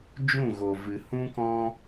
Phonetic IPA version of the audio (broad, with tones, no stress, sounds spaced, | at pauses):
d͡ʒ ũ˦˨ ɣ o˨ v ɨ˨ h ũ˦ k ɔ̃˦